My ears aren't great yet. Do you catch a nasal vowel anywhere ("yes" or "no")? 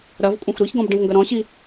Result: yes